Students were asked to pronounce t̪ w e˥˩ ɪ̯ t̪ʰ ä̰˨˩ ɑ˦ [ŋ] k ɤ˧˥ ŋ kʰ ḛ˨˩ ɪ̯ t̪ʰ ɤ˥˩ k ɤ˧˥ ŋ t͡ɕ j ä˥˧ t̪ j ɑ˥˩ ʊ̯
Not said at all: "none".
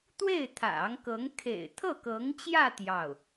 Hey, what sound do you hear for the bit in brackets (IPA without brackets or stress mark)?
ŋ